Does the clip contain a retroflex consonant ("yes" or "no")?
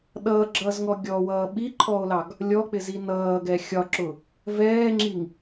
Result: no